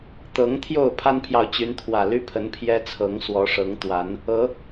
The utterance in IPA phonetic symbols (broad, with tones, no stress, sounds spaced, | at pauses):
t̪ ɤ˨˦ ŋ t̪ʰ j o˥˨ ʊ̯ pʰ a˦ n pʰ j ɑ˨ ʊ̯ t͡ɕ y˨˦ n t̪ʰ w ä˨˩ l y˦ pʰ ə˨˦ n pʰ j ɛ˦ t͡sʰ ɤ˨˦ ŋ s w ɔ˨˦ ʂ ɤ˨˦ ŋ t̪ w a˨˦ n | ɤ˨˦